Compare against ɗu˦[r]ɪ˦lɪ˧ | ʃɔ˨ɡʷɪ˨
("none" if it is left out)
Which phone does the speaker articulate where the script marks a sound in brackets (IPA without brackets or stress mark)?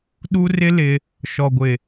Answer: r